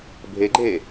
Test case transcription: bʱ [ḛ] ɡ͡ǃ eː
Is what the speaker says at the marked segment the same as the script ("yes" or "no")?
no